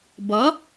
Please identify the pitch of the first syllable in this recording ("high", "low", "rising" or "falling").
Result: rising